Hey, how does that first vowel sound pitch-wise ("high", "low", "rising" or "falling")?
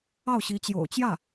falling